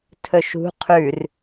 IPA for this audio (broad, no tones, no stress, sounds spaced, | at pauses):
tʰ ɵ ʃ ṳ qʰ ʉ r